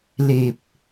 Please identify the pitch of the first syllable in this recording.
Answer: low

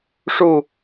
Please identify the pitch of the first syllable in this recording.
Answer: falling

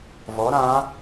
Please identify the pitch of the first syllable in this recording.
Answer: rising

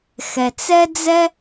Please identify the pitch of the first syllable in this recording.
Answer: low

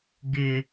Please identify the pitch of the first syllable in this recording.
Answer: low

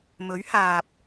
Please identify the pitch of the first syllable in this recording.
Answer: rising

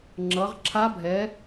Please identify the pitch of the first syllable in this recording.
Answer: rising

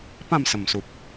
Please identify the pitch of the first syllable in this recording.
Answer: falling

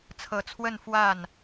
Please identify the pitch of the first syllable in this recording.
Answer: low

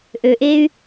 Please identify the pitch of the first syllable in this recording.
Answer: low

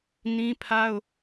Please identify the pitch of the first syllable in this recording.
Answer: high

